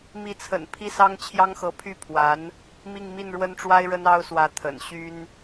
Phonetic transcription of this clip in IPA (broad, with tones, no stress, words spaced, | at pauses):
mi˧˥t͡sʰə̰˨˩n pʰi˥˩sɑ˥ŋt͡ɕʰjɑ˥ŋxɤ˧˥ pʰy˥˩pʰwa˧˥n | mi˥˧ŋmi˥˩n ɻwə˥nʈ͡ʂwa˥ɪ̯ɻə˥n ɑ˥ʊ̯swä˧˥ t̪ʰə̰˨˩n ɕy˥n